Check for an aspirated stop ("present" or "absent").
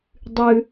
absent